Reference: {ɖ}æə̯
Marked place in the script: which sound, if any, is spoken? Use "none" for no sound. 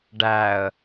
ɖ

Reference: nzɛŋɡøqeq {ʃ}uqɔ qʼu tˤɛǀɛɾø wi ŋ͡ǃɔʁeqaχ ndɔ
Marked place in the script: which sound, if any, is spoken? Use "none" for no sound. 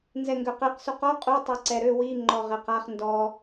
s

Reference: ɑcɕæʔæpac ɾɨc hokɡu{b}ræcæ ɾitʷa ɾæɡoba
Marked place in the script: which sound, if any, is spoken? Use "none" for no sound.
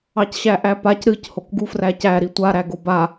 f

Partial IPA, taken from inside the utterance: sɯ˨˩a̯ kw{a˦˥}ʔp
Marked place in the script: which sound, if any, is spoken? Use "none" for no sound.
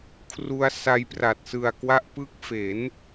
a˦˥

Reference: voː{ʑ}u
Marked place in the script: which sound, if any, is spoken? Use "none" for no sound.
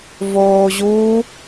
ʑ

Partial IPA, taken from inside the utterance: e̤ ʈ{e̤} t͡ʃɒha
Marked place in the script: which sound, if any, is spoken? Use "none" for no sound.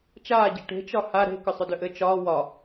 e̤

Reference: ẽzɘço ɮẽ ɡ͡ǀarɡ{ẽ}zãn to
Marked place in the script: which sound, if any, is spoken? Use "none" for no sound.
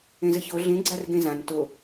ẽ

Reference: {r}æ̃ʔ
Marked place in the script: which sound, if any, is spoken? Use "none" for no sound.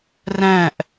r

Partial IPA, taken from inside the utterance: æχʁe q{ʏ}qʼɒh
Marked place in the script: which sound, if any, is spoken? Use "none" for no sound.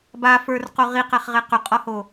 ʏ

